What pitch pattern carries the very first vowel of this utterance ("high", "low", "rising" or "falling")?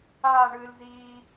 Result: falling